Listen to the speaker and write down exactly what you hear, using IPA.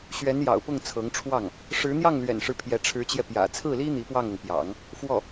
ɕɥɛ˧˥njɑ̰˨˩ʊ̯pʊ˥˩ŋ t͡sʰɤ˧˥ŋʈ͡ʂʰwɑ˥˩ŋ | ʂɻ̩˧˥n̪jɑ˥˩ŋlɥɛ̰˨˩nʂɻ̩˦ pʰjɛ˧˥ʈ͡ʂʰɻ̩˧˥t͡ɕjɛ˧ pjä̰˨˩t͡sʰɹ̩˥˩li˥ n̪i˧˥pwɑ˥˩ŋɤ˩ŋ pjɑ̰˨˩˦ŋ | fwɔ˥˩

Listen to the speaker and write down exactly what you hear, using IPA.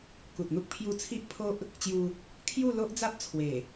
ku˨t̚n̪u˦k̚ pʰju˧t͡sʰi˦ʔ pʰo˦ʔ | t͡ɕju˧ | kʰju˥˧ lo˦ʔd͡za˦p̚t͡sʰwe˨˩

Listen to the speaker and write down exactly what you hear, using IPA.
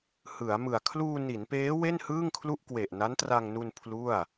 hɯ˩˦a̯mɯ˨˩a̯ kʰluː˧ni˩˦npeː˦˥ we˥˩nhɯː˥˩ŋkʰlu˥˩ʔkwe˨˩ʔ na˦˥ntra˧ŋnu˧n pʰlu˥˩a̯

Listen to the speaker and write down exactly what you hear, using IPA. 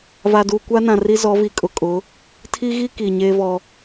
va˨duː˨ kʷa˦nã˨ri˦ zɔ˨˦vi˨kʼʊ˨kʼʊ˨˦ | tʰi˦ɣi˦ ki˨ ɲeː˦vɔ˦

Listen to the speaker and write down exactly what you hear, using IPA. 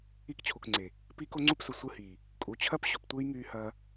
i˦kt͡ɕʰu˨kŋ͡ǀe˨ | piː˦ko˦ŋ͡ǀu˦psʊ˨ sʷɯ˦hiː˨ | kʼu˨t͡ɕʰɐ˦pɕʊ˨ptʷɯː˦j ŋyː˦hɐː˦

